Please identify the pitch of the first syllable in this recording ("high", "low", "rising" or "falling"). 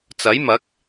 rising